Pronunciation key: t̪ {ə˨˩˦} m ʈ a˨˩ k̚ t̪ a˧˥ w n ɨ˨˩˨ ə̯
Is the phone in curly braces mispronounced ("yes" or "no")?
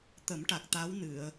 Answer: no